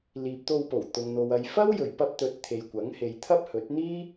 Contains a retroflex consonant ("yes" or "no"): no